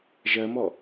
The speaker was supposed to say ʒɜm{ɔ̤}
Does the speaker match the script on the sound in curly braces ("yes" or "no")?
no